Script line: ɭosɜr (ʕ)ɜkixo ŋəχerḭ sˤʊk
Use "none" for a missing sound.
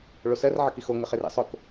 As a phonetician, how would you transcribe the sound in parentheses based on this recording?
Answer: ʕ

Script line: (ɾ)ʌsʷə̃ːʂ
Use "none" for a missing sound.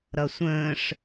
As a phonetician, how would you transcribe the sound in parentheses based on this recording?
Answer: ɾ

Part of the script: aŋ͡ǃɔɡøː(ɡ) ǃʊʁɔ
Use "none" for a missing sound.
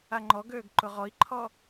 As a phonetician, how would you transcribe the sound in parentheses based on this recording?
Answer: ɡ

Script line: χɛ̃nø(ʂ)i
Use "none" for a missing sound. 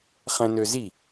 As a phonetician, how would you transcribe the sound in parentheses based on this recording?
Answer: z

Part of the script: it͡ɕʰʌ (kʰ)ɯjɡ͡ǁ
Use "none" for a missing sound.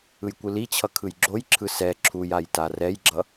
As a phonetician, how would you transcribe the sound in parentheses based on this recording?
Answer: kʰ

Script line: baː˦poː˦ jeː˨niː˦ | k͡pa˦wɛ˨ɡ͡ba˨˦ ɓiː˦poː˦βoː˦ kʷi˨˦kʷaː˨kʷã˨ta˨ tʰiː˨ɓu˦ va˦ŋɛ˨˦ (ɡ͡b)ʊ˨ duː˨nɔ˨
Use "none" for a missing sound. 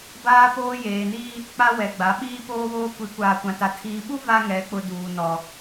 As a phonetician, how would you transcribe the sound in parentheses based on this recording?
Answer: k͡p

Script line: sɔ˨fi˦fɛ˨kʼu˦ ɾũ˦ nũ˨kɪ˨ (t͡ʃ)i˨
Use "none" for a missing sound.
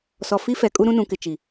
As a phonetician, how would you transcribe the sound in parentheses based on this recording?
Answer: t͡ʃ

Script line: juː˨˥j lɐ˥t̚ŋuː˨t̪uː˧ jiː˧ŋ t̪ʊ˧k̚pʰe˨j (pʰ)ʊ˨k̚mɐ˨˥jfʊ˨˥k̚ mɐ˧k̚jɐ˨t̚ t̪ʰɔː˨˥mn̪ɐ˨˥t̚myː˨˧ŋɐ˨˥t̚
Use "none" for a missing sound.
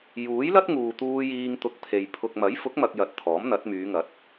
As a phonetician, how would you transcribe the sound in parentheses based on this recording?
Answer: pʰ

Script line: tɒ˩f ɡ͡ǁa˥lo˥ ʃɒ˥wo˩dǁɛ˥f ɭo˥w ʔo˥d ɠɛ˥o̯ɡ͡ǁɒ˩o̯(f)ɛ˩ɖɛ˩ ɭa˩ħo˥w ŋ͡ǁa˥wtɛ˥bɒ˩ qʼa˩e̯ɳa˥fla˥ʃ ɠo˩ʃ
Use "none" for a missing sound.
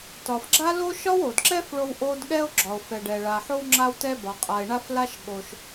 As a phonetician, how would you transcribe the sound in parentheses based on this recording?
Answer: f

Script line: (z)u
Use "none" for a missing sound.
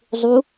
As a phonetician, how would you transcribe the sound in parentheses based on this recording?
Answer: zˤ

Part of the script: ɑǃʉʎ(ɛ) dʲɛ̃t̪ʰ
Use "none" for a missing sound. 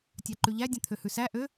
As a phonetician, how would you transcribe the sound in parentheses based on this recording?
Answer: æ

